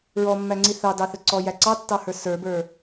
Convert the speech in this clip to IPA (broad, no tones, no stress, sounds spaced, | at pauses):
ɹ ɔ mː æ ŋ͡ǀ i θ ɑ d ɑ θ ə ǀ ɔ j æ ǀ ɑ tː ɑ h ə˞ s ə˞ b ə˞